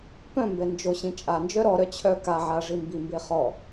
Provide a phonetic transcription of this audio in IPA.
p œ̃ m b ɛ n d͡ʒ o ɕ ĩ t͡ʃʼ a n d͡ʒ œ ɾ ɔ ɾ œ t͡ɕʰ œ k a ʕ a ʐ i m b i m b e χ ɔ

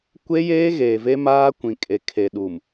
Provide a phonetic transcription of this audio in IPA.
kʷ e˦ j eː˦ ɣ eː˨ v e˦ m aː˦ kʷ ĩ˨ kʼ e˨ kʰ e˨ ɗ u˨ m

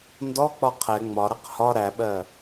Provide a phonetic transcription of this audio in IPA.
n d ɔ k͡p ɒ qʰ ɛ ŋ͡m ɒ ɾ ʌ q h ɒ ɾ æ ɓ ɜ

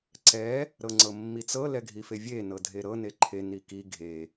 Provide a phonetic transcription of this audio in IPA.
ǀ ɛ | ɾ ɤ ŋ͡ǀ ɤ mː i t͡s ɤ l ɛ ɡʱ i f e vʲ e n ɤ dʱ e ɾ ɤ n e ǃʰ e n i k i ɡʱ e

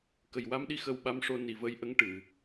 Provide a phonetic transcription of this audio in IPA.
k ə˨˩ j w a˧ m ɗ i˧ x ə˧ w ɓ a˧˥ m ʂ o˧ n i˨˩ v ə˧ j ʔ ə˧˥ ŋ ʈ ɨ˨˩˨

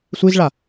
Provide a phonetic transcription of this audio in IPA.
sʷ i z ɭ a

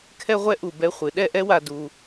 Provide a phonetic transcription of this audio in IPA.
kʰ ɛ˥ ʁʷ ɛ˥ ʔ u˧˩ b ɛ˥ χʷ ɨ˩˧ ɗ ɛ˥˧ ʔ ɛ˥ w a˧ d u˧

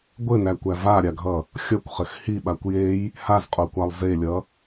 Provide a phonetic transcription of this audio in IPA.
ɡʷ ɘ n æ kʷ æ v a ɾʲ a ɡʱ ʌ | xʲ ʌ kʷ χ ɘ x h i ɓ a kʷ j e j | h a z qʼ o kʷ a lˠ z e lʲ ʌ

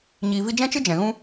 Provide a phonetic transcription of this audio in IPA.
ɲ iː˨ v i˧ d͡ʒ ɛ̃˦ t͡ʃ ɨ˦ d͡ʒ ɛ̃˨ ɣ ũ˦

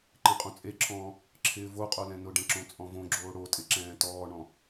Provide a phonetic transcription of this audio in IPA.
ǃ ẽ qʼ õ t͡sʼ e ǁʰ ɔ̃ː | ǁʰ ɪː v o qʼ o l ɛ̃ n ʊ ɖ ɛ̃ ǁ õ t͡sʼ ɔ̃ v õ ɡ͡ǁ oː ɽ o tʼ ɪ ǁ ɛ̃ː t ɔː ɳ ɔ̃

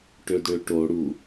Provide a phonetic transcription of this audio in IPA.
ʈ ø d ɽ ø ʈ o ɽ u

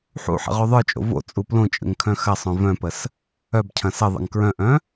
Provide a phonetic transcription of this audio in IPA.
ħ ṵ ħ ə̰ ʁ o ðˤ ə˞ t͡ʃʼ o̰ v o̰ t͡sʼ u p l õ t͡ʃʼ ə̰ ŋ kʰ œ̃ x ɐ sˤ œ̃ v œ̃ p ə s | œ b cʰ ɐ̃ s ə ðˤ ə̰ ŋ k ɹ œ̃ ʔ œ̃

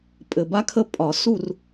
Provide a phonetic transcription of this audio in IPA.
pʼ ɘ˨˩ b a˦ kʰ ə˦˨ pʼ ɒ˨˩˦ s u˦˨ r

